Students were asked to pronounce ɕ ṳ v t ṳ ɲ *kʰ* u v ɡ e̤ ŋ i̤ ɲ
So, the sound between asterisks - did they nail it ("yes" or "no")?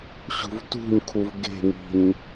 yes